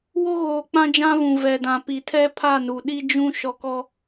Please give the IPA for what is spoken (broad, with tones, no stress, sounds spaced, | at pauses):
w o˦ ɣ oː˨ k͡p ã˦ d͡ʒ ã˦ v ũ˨ v ɛ˨ d ã˨ p i˨ tʰ ɛ˦ pʰ a˦˨ n u˨ ɗ i˦ d͡ʒ ũ˦ ʃ ɔ˦ k ɔ˦